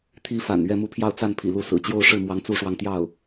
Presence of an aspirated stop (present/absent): present